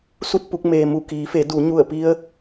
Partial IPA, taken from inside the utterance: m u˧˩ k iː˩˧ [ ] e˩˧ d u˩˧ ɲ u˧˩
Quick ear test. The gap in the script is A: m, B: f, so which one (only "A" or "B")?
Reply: B